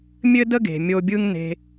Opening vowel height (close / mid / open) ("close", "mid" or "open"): mid